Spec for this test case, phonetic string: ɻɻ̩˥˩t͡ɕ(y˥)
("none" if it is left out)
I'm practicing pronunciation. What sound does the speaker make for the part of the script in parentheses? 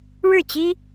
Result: i˥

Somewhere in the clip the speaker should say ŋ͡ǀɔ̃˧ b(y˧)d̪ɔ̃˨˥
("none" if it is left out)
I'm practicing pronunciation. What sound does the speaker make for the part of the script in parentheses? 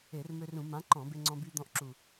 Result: y˧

